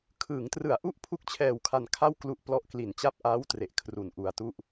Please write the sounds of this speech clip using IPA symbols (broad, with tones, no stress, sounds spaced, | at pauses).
kʰ ɯː˩˦ ŋ t r ɯ˨˩ a̯ ʔ u˥˩ ʔ pʰ u˥˩ k̚ t͡ɕʰ ɛː˧ w kʰ a˧ n kʰ a˥˩ w k l u˦˥ ʔ p l ɔ˦˥ ʔ k l i˨˩ n t͡ɕ a˦˥ p̚ ʔ aː˦˥ w t r e˨˩ ʔ kʰ r u˨˩ n ʔ u˧ a̯ t u˥˩ ʔ